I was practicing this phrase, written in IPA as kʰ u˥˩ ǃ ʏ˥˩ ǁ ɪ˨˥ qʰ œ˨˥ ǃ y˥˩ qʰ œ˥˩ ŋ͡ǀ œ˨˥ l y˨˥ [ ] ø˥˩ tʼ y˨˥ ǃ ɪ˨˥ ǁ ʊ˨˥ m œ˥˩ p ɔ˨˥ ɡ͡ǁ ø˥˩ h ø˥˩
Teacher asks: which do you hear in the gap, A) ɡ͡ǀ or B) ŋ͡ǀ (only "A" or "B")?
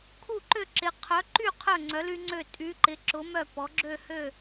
B